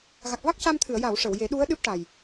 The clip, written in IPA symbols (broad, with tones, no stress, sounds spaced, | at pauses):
ɣ a˨˩ k̚ v a˦˥ k̚ c a˧ m t̪ʰ ɨ˨˩˨ ə̯ j a˨˩˨ w ʂ ə˨˩˨ w j e˨˩˦ ɗ u˧˥ ə̯ ɗ ɨ˦˥ p̚ ʈ a˨˩ j